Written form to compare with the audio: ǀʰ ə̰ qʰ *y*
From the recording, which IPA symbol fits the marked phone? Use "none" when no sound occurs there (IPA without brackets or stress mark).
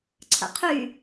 y